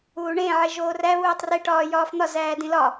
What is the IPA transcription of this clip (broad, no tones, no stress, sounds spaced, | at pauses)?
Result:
uː ɳ ẽ ʕ e ʒ oː r æ β uː tˤ r e ʈ ɒː j ɒː f n̪ ɒ z æː d ĩ l ɒ